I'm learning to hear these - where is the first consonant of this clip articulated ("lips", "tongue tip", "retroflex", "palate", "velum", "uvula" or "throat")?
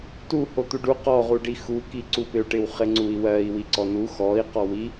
tongue tip